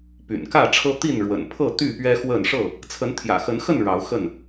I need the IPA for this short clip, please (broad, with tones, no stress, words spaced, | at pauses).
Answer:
py̰˨˩nkä˥˨ʈ͡ʂʰɤ˦ t̪i˥˨nɻwə̰˨˩npʰɤ˥˨ t̪y˥˨pɥɛ˦xwə˥˨n ʂɤ˥˨ | t͡sʰə˨˦nt̪ʰjä̰˨˩xə˨˦nxə˥˨n ɻɑ˨˦ʊ̯xə˥˨n